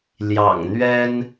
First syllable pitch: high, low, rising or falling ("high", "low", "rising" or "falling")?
low